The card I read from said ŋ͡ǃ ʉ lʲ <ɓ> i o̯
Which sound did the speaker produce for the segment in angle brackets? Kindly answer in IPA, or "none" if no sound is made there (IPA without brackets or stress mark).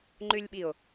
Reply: ɓ